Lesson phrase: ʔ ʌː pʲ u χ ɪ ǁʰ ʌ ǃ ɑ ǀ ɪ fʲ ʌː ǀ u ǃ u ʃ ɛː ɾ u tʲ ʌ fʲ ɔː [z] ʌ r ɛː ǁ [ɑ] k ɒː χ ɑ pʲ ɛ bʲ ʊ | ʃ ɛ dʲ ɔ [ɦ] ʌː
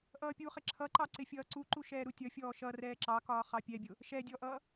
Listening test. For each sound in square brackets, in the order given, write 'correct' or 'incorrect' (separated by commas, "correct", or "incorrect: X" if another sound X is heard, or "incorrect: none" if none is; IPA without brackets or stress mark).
incorrect: ʃ, correct, incorrect: ʔ